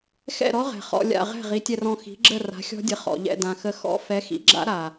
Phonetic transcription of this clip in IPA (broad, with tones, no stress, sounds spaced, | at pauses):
x ɛ̰˥˨ ɾ ɔ˦˥ ʁ ɛ̤˨˩ χ ɔ̰˧ lʲ a̰˥˨ ʁ ɛ̤˥˨ ʁ i˨˥ tʲ ɛ˧ r ɔ̃˧ x i̤˨˥ ɡ͡ǁ ə˥˨ r a̤˨˥ xʲ ɔ̤˦˥ dʲ ə˨˥ χ ɔ̰˨˩ ʎ ɛ̰˥˨ d ã˨˩ x ə˧ x ɔ̰˦˥ f ɛ˨˥ x ḭ˨˥ ɡ͡ǁ a̰˦˥ ɾ a˨˩